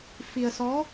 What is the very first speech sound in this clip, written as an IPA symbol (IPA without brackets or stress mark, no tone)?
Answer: f